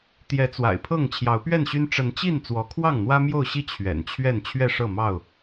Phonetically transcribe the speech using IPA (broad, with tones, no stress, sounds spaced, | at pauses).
t̪ j ɛ˨˦ t͡s w a̰˨˩ ɪ̯ pʰ ɤ˥˨ ŋ t͡ɕʰ j ɑ˨˦ ʊ̯ p ɥ ɛ˥˨ n ɕ y˦ n ʈ͡ʂ ə˨˦ n t͡ɕ i˥˨ n t͡s w ɔ˨˦ kʰ w ɑ˥˨ ŋ n̪ w ä˦ m j o˥˨ ʊ̯ ɕ i˥˨ t͡ɕʰ ɥ ɛ̰˨˩ n t͡ɕʰ ɥ ɛ˥˨ n t͡ɕʰ ɥ ɛ˥˨ ʂ ɤ˥˨ m ɑ˥˨ ʊ̯